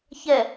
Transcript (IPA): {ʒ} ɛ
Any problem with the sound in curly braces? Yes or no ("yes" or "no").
yes